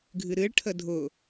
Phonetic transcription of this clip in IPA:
ɡʱ ɨ ɾ ɨ ɭ ʈʰ ə dʱ ʊ

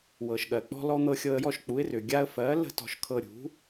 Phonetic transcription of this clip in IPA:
w ɤ˩ ʃ ɠ ɜ˩ k͡p ɔ̤˧ l ɔ˧ n̪ ɤ˧ xʲ ɤ˧ ə̯ j ɔ˥˩ ʃ k͡p u˩˥ ɪ̯ r ʏ˩ ɡʲ a˧ ə̯ f ɜ˩˥ l ə̤˥˩ t ɔ̤˧ ʃ kʰ ɤ˧ ɾʲ ṳ˩˥

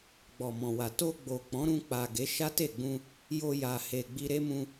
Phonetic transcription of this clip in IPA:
ɡ͡b ɔ˨ m ɔ̃˨ w a˨ t o˧ ɡ͡b o˨ k͡p ɔ̃˨˦ ɾ ũ˧ k͡p a˨ ɡ e˨˦ ʃ a˦ t e˦˨ ɡ͡b ũ˧ | j o˧ j a˨ h e˨ ɡ͡b i˧ ɾ e˦ m ũ˧

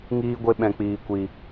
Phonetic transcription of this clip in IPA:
ŋ iː˦ ɡʷ e˦ ɓ ɛ̃˧ k͡p iː˧ kʷ i˧

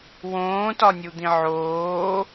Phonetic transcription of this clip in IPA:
w õː t ɒ nʲ u d̪ ĩ ʕ oː

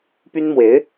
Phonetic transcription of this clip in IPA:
p y˥ n m w e˧˥ ɪ̯

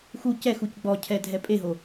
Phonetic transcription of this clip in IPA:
x u c ɛ x u c ɡ͡b ɔ cʰ ɛ dʱ ɛ pʼ e ɦ o

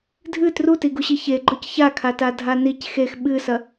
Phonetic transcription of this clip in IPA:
dʱ ɨ t r u t i ɡ u ɕ i ç e ɡ͡ǃ ɵ c ç a kʰ a t a dʱ a n i c x e x ɓ ɨ s ɐ

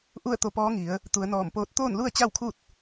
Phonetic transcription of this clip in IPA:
ʔ u˥˨ ə̯ t̪ o˧ p ɔː˧˥ ŋ i˩˧ ə̯ | t̪ u˩˧ ə̯ n ɔː˧˩ m p oː˧˥ t̚ t̪ oː˥˨ n l u˥˨ ə̯ t͡ɕ a˥˨ w kʰ u˥˨ t̚

